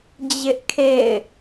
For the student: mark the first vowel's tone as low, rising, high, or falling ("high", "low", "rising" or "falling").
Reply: high